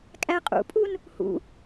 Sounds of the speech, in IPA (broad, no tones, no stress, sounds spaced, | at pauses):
kʼ æ qʼ ṵ pʼ u n | h ṵ